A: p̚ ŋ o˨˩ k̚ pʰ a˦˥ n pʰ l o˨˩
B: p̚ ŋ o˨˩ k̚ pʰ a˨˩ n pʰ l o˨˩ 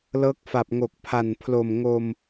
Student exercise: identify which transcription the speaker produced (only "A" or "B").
B